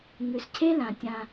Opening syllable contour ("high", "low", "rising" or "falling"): low